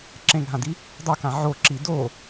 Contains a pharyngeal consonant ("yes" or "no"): yes